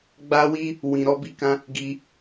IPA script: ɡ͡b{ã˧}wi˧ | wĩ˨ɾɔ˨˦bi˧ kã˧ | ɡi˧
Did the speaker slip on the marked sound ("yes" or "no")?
yes